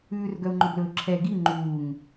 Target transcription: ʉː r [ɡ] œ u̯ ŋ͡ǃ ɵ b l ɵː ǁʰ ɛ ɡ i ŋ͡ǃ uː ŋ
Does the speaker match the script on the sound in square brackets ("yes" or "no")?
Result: yes